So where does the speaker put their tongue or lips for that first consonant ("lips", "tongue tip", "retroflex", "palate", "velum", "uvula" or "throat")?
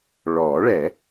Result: retroflex